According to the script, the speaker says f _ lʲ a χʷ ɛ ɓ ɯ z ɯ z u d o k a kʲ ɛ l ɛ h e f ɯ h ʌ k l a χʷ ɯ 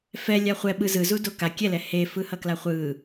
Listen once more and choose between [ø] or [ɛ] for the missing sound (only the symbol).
ɛ